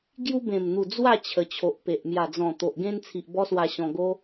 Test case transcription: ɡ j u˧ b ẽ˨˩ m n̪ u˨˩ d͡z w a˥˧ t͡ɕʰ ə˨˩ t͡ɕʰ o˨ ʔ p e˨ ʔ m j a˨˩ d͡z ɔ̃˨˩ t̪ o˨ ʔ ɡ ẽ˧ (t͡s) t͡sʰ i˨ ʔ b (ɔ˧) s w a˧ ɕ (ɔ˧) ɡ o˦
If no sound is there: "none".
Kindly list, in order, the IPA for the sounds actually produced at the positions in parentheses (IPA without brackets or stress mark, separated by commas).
n, ɔ˧, ɔ̃˧